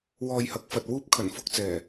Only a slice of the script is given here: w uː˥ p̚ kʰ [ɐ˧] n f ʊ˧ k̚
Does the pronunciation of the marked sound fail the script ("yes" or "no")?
yes